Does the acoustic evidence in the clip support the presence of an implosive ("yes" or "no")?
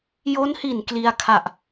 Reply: no